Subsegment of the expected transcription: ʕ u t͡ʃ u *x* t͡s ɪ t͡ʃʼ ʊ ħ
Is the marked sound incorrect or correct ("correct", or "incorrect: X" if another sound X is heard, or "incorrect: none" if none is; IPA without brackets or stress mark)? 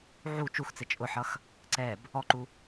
correct